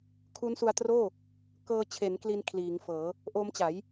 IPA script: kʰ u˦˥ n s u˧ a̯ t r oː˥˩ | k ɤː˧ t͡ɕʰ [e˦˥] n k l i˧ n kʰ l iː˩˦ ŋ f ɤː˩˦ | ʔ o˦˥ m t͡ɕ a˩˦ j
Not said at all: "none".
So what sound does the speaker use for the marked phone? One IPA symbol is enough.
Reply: e˩˦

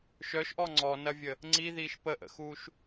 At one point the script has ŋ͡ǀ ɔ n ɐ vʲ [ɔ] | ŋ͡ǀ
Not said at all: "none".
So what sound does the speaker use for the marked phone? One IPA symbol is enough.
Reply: ə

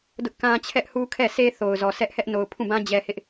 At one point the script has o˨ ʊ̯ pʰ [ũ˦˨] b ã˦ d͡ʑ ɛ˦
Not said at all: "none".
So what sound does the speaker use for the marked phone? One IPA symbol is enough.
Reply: ũ˦˨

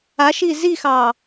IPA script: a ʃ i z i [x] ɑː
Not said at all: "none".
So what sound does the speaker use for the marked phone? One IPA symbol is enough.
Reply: x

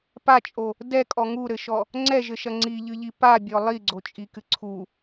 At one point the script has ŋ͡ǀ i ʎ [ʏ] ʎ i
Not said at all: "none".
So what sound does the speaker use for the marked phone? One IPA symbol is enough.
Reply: ɨ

